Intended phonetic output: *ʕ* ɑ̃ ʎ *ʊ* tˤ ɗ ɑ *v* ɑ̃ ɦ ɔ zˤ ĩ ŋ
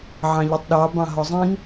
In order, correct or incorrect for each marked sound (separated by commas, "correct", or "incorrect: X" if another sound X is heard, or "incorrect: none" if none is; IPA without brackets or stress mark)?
correct, correct, incorrect: b